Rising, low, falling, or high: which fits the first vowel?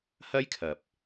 high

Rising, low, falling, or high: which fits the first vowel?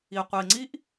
low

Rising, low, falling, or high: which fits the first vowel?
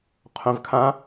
low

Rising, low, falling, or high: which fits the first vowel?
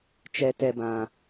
low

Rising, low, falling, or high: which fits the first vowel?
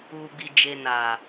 low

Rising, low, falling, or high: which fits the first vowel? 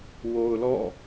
low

